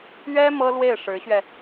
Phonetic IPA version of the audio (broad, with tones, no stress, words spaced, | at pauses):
ɥɛ˥ mɤ˥lwe˥˩ɪ̯ʂɻ̩˧˥ɕɥɛ˧